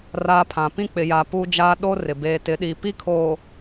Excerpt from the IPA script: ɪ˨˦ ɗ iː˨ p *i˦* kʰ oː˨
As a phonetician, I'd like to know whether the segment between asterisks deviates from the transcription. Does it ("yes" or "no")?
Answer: no